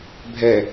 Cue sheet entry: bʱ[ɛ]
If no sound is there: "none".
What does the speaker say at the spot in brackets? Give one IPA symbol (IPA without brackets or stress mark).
ɛ